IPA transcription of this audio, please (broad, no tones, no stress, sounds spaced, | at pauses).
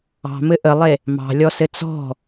ɑ̤ m ɘ ʔ ə lˠ e | m ɑ̤ lʲ ɔ s ɘ t͡s ɔ̤